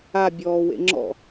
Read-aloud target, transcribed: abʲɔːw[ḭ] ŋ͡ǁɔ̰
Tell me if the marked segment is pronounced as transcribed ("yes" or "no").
no